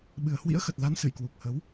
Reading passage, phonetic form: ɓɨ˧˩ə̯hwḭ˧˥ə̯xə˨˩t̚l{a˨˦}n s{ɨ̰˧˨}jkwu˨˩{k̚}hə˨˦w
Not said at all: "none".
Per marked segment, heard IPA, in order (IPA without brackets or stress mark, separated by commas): a˨˦, ɨ̰˧˨, k̚